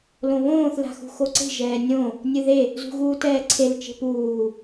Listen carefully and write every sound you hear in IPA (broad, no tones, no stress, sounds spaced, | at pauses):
l õ β õː θ l a̤ x ṳ x o ǀ e̤ ʒ ɛː nʲ õ | nʲ ɨ ð e | z ṳ ɣ uː t ɛː ǀʰ e l t͡ʃ e̤ p uː